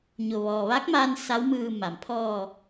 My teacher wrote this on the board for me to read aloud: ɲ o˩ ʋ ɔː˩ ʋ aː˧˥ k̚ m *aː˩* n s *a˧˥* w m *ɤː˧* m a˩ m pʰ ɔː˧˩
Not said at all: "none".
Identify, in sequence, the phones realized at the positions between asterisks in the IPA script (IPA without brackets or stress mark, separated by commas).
aː˧, a˧˥, ɯː˧